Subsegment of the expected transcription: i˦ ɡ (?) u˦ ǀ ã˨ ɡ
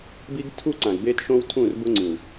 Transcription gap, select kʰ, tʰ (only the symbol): tʰ